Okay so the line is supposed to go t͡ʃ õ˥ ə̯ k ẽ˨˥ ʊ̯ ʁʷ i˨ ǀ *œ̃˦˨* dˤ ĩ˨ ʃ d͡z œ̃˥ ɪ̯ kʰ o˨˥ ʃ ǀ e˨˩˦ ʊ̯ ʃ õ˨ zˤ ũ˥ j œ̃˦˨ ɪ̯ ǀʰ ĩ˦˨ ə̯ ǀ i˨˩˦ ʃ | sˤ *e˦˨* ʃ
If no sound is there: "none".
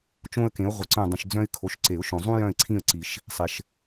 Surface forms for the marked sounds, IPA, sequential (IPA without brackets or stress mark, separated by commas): œ̃˦˨, e˨